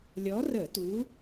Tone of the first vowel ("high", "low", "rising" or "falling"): rising